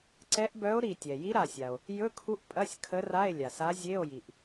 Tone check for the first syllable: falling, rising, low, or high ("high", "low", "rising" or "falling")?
rising